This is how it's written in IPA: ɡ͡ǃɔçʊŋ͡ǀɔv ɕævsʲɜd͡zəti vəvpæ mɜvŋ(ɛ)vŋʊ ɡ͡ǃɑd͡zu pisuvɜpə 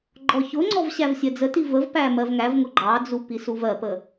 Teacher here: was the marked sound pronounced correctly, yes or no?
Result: no